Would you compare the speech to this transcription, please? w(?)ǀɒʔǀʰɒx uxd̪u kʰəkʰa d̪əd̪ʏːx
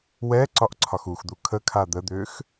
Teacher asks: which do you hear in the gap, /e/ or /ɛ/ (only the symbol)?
ɛ